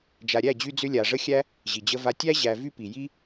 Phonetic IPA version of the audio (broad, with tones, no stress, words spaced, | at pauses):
d͡ʒa˨ɾʲæ˦˨d͡ʑy˧d͡zʏ˧ lʲa˨ʐə˦xʲæ˦ | ʑi˨d͡ʑə˧va˧ tʲæ˦ʑæ˨ vy˦pi˨ji˦